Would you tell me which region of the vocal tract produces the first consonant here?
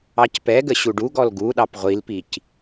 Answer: palate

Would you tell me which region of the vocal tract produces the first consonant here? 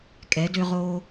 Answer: velum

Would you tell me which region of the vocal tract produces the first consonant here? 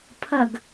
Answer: lips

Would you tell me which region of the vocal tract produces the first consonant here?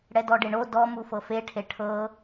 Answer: retroflex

